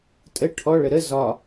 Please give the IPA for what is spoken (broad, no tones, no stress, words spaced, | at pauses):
tʼə ʈʰɔɭə ɾə zɒ